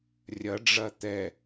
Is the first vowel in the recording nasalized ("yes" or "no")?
no